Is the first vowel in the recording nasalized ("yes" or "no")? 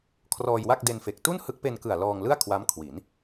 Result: no